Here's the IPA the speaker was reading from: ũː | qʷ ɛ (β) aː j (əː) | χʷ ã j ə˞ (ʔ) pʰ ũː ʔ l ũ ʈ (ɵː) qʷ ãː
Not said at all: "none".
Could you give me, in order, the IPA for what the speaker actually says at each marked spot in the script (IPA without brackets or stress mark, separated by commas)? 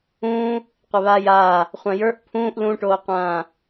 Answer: β, aː, ʔ, oː